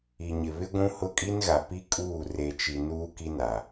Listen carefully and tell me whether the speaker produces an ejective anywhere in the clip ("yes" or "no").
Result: yes